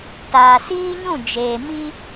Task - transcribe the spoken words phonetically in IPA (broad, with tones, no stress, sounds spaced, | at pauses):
t aː˨ s iː˦ ɲ ũ˦˨ d͡ʒ eː˨ m i˦